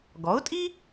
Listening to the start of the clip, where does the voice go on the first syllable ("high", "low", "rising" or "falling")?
rising